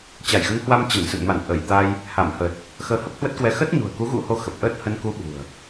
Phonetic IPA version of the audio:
t͡ɕ a˧˩ j ɣ ə˨˦ n h w a˧ m t͡ɕ ə˧˩ n s ə̰˧˨ n m a˧˩ n ʔ ə˧˩ j t̪ a˧ j | h a˧˩ m h ə˨˩ t̚ | x əː˨˦ h ə˦˥ p̚ h w ə˦˥ t̚ k w ɛ˧ x ə˦˥ t̚ ɲ ṳ˨˩ ə̯ k u˨˦ ɣ ṵ˧˥ h o˨˦ x ə˨˩ p̚ ʔ ə˦˥ t̚ h ə˧ n k u˨˦ ɓ ṳ˨˩ ə̯

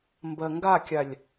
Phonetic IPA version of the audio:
m b ɜ ŋ ɡ a kʲ a lʲ

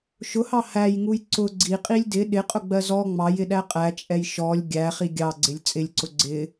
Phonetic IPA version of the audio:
ʃ ʊ h ɑ h æ j ŋ u j ǀ ʊ ɡ͡ǀ i qʼ i lʲ d ɪ ɗ ɪ qʼ ʊ ɡ͡b ɜ z ɔ ŋ͡m ɑ j ɪ ɗ æ qʼ æ t͡ʃʼ ɛ j ʃ ɔ lʲ ɡʲ æ χ i ɡʲ ɑ ɡ͡ǀ ɪ lʲ t͡sʼ ɪ lʲ ǀ ʊ ɡ͡ǀ ɪ

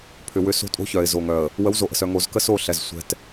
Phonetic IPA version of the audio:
pʰ ʏ˨ w ʏ˨˦ s o̤˦ tʼ o̤˦ ç œ˨ ɪ̯ z o˨ ŋ œ˨ ə̯ | w ə˨˦ w z o˨ ʔ ə̤˨ s œ˨ ŋ o˨ z k ə˦ s o˦˨ ɬ ɛ˨ z sʷ ɛ̤˦ t

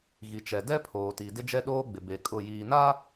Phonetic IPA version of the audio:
ɣ i˨ t͡ʃ ɛ˨ d ɛ˦ pʰ oː˨ t i˨ d ɪ˦ d͡ʒ ɛ˦ ɗ oː˦ ɡ͡b ɪ˨ b e˨ kʼ ʊ˦˨ j iː˨ n a˦

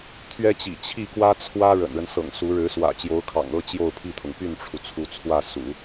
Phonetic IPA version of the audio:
t̪ʰ ɥ ɛ˥ t͡ɕ ḭ˨˩ t͡ɕʰ i˥˩ k w ä˥ t͡sʰ w ä˥ ɻ ə̰˨˩ n ɻ ə˦ n s ɤ̰˨˩ ŋ s u˧˥ ɻ ɻ̩˧˥ s w ä̰˨˩ t͡ɕ j o˧˥ ʊ̯ kʰ ɑ̰˨˩ ŋ ɤ˥ t͡ɕ j o˥˧ ʊ̯ pʰ i˥˩ t̪ʰ ʊ˩ ŋ p y˥˩ n ʈ͡ʂʰ u˩ t͡sʰ u˧˥ t͡sʰ w ä˥˩ s ṵ˨˩˦

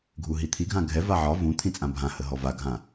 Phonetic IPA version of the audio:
ɡʱ u ɦ i t̪ʰ i ɡʱ ã ɡʱ ɛ v a ʕ ɒ v ũ t̪ʰ ĩ t͡sʼ ã bʱ ã h ə ɦ ɔ v a ɡʱ ã

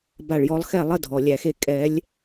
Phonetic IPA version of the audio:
b a˧˩ ɭ j ɔ˨˦ lˠ x ɛ˥˩ lˠ ə˦˥ dʱ ɔ˩˧˩ lʲ æ˧˩ x e˥˩ kʼ ɛ˨˦ lʲ

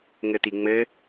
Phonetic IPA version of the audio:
ŋ ɘ t̪ i ŋ͡m ɘ

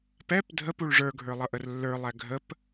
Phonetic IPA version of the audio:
p ɛ p dʱ ə p u ɭ ʐ ə˞ ɡʱ ə˞ lˠ ʌ ʔ ə r lː ə˞ lˠ æ ɡʱ ə p

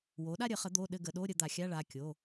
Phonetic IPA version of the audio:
w o˩˧ ɗ a˥˨ ɾʲ ə˧˩˧ χ ə˩˧ d̪ o˩˧˩ ɗ ɘ˥˨ ɡ ə˧˩˧ ɗ o˧˥˧ ɾʲ ə˥˨ d̪ a˧˩˧ xʲ a˧˥˧ ɭ a˩˧˩ kʲ o˩˧˩

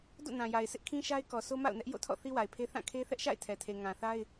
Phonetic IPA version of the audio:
d o̰˦˨ n ã˨ j a˨ ɪ̯ sʰ ɪ˦ ʔ kʰ ĩ˦ ʃ a˦ ɪ̯ k ɔ˨ sʰ o˦ m a̰˦˨ ʊ̯ n ɛ˦ ʔ j o̰˦˨ tʰ ɔ̰˦˨ θ i˦ w a˨ ɪ̯ pʰ e˦ θ ã˦˨ kʰ e˦ θ ɛ˦ ʔ ʃ a̰˦˨ ɪ̯ tʰ ɛ˨ tʰ e˨ ŋ ã˨ θ a˦ ɪ̯

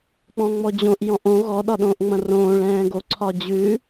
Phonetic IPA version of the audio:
k͡p ɔ̃ ŋ͡m ɔ d͡ʑ õ ʔ j ɔ̃ ʔ õ ɣ ɔ ɗ ɒ ɗ õː ʔ ŋ͡m ɐ̃ r õː ɭ ɛ̃ː ɡ o ǀʰ ɒ d͡ʑ ʉ

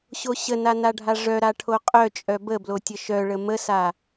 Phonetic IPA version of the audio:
ɕ o ɕ ə n a n a ɖʱ a ʐ œ ɾ a ʈʰ o qʼ œ t͡ʃʼ œ b ə b l o tʲ ə ʃ œ ɭ ə m ə s a

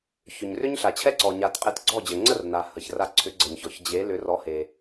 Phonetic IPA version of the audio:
ç ʏ˩ ɲ r ʏ˥ ɲ ɬ a˩ t͡ɕʰ ɛ˥ ǀ ɔ˩ ɲ a˩˥ t qʼ e˧ t ɡ͡ǀ ɔ˥˩ d͡ʑ ə˩ ŋ͡ǀ ə˥˩ r n a˩ h ə˩ ç r a˧ ǀʰ ʏ˩˥ ɡ͡ǀ ə˩ ɲ ç ɔ˩ ç d͡ʑ e˩˥ l ʏ˩˥ r ɔ˩˥ h e˩

